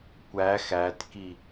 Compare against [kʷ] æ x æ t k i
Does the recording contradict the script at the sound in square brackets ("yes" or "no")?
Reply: no